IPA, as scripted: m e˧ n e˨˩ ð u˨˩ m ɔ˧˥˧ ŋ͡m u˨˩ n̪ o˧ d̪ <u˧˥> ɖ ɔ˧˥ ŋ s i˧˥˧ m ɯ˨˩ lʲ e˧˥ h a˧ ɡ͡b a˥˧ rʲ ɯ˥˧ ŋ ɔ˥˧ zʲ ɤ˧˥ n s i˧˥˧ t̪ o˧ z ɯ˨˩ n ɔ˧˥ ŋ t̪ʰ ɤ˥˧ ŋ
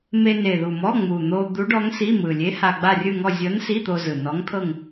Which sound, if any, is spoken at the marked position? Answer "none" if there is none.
u˧˥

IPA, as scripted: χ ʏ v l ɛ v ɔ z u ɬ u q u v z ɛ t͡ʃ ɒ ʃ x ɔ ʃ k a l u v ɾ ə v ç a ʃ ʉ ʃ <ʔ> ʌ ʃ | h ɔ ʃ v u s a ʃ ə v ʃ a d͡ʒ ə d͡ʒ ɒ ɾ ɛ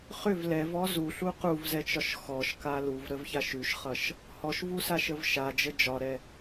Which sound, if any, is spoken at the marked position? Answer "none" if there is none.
χ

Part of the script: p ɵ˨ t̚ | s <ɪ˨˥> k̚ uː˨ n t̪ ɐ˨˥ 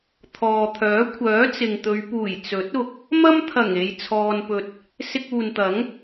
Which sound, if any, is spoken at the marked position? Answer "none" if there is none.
ɪ˧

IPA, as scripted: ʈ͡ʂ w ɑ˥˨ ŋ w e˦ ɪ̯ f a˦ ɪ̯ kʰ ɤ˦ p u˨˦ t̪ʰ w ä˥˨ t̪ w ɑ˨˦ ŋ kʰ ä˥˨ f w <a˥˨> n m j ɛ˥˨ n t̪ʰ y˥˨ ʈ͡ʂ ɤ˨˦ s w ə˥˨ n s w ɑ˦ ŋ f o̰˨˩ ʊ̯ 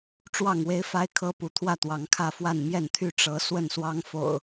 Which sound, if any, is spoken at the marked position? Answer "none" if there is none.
a˥˨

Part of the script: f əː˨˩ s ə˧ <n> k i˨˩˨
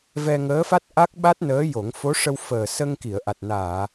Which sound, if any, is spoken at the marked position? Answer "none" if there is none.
ŋ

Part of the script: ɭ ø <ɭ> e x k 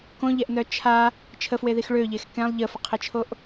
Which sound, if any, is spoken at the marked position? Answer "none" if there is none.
ʎ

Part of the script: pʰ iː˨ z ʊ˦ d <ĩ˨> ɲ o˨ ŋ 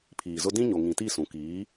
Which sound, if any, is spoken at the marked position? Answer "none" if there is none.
ĩ˦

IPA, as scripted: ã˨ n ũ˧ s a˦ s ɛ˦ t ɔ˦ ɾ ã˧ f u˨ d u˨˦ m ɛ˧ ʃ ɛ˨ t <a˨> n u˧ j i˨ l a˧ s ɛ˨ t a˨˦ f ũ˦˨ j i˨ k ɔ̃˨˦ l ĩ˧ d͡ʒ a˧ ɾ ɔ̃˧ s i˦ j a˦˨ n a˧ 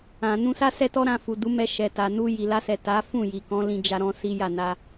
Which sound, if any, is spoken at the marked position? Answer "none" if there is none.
a˨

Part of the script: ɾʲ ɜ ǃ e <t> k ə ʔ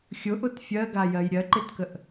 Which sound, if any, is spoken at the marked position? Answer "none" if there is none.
t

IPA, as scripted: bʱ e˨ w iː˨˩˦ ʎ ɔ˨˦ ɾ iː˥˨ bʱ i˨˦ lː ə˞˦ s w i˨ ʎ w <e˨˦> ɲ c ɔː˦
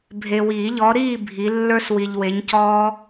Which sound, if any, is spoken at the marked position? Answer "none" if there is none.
e˨˦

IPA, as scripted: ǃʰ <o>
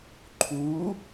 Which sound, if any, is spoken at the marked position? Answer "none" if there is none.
u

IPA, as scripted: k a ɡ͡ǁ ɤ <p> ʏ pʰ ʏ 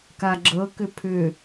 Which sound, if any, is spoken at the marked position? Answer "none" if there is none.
k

